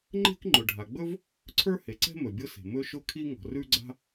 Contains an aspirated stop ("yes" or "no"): yes